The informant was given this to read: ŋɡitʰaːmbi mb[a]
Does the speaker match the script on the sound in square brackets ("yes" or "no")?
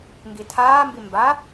yes